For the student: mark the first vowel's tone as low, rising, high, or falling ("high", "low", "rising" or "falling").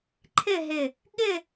falling